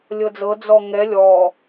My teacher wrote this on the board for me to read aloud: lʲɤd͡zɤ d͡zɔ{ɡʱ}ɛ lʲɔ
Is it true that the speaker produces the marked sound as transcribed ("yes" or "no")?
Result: no